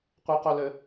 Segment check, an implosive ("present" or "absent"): absent